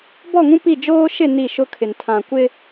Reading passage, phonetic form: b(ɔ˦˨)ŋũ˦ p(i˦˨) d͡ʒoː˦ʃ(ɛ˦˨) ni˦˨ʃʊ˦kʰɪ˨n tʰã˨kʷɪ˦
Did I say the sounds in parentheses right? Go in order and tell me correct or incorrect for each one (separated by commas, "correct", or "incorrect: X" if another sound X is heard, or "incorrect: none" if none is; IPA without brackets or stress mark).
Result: correct, correct, incorrect: ɪ˦˨